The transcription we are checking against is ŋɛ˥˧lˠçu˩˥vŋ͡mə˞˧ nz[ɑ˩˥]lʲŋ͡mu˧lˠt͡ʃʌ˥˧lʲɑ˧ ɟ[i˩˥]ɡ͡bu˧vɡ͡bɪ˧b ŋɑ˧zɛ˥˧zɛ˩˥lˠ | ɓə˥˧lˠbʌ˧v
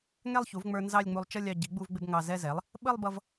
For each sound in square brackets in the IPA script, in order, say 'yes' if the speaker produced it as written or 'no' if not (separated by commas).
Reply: no, yes